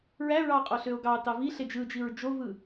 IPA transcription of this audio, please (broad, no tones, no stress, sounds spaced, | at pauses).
ɹ æ ɹ ɑ qʼ o ɬ ø o̯ ɡ ɑ t ɑ v i ɬ e d͡ʒ ɯ d͡ʒ i ɹ d͡ʒ o v ɯ